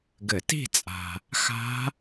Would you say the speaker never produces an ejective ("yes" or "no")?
no